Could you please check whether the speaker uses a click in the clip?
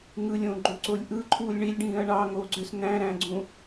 yes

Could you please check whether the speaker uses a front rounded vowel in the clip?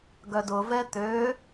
yes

